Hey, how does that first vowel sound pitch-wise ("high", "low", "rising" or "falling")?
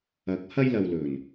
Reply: rising